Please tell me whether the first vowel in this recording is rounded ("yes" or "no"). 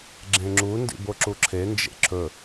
no